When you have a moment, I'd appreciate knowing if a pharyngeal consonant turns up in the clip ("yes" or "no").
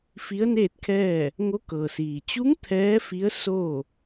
no